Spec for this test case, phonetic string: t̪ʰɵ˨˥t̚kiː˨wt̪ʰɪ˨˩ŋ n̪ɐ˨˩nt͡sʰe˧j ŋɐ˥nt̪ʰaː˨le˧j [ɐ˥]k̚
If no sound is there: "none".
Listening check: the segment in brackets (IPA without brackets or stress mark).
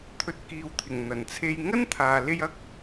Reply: ɐ˥